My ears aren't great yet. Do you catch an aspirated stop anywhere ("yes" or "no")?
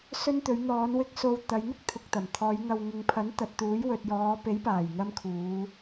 yes